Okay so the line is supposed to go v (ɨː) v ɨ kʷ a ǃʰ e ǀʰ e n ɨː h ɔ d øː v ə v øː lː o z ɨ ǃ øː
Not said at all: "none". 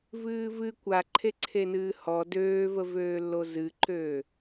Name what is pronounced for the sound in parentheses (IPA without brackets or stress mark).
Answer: ɨː